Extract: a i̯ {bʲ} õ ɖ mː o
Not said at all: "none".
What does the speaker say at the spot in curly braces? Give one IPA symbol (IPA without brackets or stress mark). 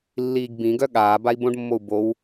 b